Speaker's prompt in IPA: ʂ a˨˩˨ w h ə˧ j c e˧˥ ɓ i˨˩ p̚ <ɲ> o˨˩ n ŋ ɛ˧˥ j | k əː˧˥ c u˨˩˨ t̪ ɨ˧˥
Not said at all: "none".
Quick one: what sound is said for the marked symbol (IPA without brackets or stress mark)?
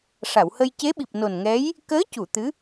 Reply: n